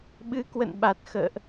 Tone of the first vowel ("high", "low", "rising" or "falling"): rising